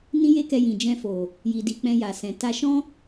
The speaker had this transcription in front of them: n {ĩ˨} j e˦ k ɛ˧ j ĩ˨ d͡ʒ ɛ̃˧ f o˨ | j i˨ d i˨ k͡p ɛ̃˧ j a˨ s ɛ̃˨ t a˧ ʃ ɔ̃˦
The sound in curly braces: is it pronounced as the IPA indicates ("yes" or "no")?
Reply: no